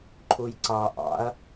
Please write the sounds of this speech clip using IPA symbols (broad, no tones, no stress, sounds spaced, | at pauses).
ǃʰ u j ǀ ɑ ʔ ɑ̰ ɐ̯